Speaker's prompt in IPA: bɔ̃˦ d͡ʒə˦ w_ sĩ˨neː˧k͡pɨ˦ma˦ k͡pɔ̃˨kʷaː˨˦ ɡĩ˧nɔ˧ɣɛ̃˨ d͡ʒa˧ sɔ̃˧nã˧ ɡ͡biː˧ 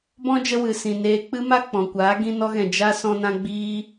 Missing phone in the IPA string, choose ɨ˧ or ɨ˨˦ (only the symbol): ɨ˧